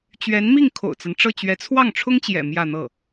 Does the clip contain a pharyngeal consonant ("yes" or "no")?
no